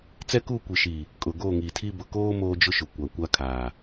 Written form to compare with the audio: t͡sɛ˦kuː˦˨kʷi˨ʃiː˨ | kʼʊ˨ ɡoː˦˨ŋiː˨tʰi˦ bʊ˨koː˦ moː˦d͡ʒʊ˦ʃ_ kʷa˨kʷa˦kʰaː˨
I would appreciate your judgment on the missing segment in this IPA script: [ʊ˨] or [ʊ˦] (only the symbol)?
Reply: ʊ˨